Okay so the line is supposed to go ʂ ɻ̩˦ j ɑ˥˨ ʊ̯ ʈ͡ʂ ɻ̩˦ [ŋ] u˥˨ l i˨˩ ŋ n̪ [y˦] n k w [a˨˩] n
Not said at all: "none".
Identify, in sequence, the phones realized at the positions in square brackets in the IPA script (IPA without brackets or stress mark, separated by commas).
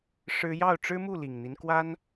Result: m, i˦, a˦